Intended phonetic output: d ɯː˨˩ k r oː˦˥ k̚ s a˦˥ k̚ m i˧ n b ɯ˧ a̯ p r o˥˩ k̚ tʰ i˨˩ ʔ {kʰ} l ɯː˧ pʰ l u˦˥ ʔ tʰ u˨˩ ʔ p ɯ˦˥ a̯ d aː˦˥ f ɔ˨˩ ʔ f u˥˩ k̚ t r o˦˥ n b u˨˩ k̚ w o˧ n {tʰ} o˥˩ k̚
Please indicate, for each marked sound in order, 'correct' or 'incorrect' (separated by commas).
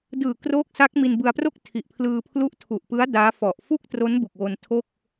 incorrect, correct